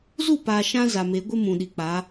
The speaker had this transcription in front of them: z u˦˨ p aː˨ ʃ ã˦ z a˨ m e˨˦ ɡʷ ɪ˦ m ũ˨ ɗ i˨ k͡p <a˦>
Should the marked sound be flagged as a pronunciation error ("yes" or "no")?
yes